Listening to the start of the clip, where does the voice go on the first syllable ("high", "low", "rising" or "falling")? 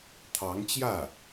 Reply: rising